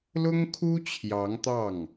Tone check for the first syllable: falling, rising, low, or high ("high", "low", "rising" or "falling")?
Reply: high